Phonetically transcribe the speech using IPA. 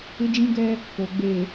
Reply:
ɪ˦d͡ʒĩ˦ɡɛ˦ | ko˨ɡ͡be˨

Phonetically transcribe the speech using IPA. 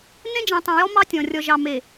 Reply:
nẽ˦d͡ʒĩ˨tˤĩ˨ jɔ˦mɑ˦tʲɔ̃˨ rʲɔ˨ʒɑ˨ me˨

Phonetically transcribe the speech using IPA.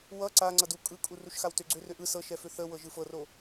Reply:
wʌ ǀa ŋ͡ǀʌdu kʼɯkʼu ruʃxawtʏ ɡ͡ǀʏrʏ ʔɯ sɤʃɛfʏ θəwɤ ʒɯfɤro

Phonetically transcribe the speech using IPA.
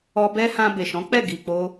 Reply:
ɔ˧bɛ˦hã˧ be˨ʃɔ̃˨˦k͡pɛ˦˨ ɡi˨k͡po˧

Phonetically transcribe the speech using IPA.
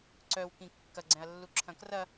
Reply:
ǀœwkĩ kːɐɡ͡ǀɛ̃ɐ̯lːuǁʰɐ̃ krɐ

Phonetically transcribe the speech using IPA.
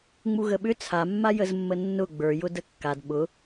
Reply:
ŋ͡muɣəɓʏ t͡sʰamːa jəzmːənːʊ ɡ͡bə˞jʊ dəkːad ɓʊ

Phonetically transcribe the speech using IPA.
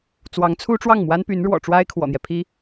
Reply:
t͡swɑ˧˥ŋt͡sʰu˥ʈ͡ʂwɑ˥˩ŋ mwa˥npy˧˥n ɻwɔ̰˨˩ʈ͡ʂwa˥ɪ̯ kʰwɔ̰˨˩n̪jɛ˦pʰi˥

